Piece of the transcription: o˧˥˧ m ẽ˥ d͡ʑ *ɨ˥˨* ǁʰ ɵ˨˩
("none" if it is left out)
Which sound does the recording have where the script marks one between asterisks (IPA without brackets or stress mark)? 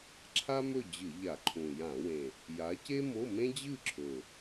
ɨ˥˨